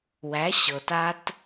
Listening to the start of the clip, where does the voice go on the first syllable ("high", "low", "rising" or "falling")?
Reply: rising